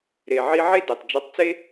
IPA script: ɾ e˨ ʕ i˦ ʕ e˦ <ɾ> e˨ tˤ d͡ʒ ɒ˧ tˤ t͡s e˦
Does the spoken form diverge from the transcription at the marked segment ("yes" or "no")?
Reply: yes